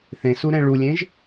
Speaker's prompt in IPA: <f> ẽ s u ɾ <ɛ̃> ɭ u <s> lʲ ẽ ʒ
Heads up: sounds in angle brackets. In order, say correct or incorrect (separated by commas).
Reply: incorrect, correct, incorrect